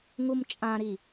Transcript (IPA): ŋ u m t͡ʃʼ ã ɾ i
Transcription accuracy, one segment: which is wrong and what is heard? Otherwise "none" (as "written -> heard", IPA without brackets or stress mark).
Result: none